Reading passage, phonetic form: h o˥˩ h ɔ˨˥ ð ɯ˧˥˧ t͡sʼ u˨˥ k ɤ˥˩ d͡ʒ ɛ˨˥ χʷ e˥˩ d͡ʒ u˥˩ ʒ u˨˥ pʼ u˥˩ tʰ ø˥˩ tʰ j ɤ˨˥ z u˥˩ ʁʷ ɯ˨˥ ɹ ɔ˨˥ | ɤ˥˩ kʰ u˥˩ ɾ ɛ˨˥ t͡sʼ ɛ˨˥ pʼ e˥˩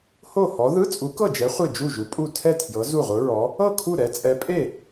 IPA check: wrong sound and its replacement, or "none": ø˥˩ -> ɛ˥˩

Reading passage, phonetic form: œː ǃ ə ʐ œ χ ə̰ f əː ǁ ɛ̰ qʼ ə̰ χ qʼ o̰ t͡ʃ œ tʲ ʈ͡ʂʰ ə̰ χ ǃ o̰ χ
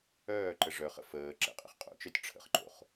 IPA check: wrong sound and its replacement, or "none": none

